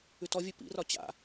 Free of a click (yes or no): yes